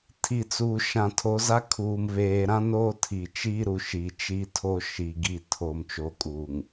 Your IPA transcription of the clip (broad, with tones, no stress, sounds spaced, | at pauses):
tʰ i˨ t͡s uː˨ ʃ ã˨ tʰ o˨˦ z a˦ kʰ uː˨ m β eː˨ ɾ ã˦ n oː˦ tʰ i˨ t͡ʃ iː˦ ɾ u˨ ʃ i˨ t͡ʃ i˦ tʰ o˦ ʃ i˨ ɡ i˦˨ tʰ oː˨ m t͡ʃ o˨ kʼ uː˨ ŋ